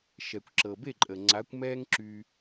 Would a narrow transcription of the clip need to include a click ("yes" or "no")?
yes